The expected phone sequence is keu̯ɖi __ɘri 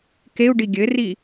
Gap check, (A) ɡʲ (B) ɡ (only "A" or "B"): A